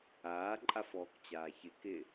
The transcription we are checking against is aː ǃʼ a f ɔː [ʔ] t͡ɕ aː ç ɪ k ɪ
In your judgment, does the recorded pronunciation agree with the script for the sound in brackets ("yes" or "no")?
no